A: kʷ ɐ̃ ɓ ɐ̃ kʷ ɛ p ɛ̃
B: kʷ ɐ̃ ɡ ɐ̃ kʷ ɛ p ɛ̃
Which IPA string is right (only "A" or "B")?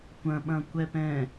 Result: A